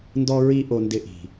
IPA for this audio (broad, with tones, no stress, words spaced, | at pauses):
ndɔ˦ɹi˦ ʔo˨ndɪ˨ ʔi̤˨